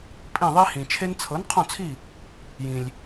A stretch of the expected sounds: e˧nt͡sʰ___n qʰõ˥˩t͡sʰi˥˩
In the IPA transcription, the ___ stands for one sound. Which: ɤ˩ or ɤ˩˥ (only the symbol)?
ɤ˩˥